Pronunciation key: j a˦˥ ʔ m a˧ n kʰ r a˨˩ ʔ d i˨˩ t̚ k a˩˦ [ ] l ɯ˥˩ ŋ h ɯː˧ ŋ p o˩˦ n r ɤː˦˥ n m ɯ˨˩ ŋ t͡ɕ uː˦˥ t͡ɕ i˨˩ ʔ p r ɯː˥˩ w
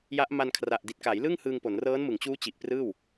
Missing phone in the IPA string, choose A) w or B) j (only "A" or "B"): B